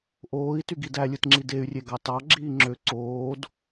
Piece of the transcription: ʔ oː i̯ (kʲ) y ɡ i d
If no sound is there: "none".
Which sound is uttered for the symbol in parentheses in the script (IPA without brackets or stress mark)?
t